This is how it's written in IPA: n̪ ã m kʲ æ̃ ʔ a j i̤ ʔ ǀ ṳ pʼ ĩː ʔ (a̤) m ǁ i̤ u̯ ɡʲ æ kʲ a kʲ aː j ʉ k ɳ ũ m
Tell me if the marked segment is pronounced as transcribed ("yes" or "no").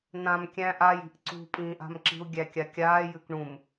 yes